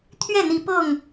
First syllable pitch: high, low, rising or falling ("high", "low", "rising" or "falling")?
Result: falling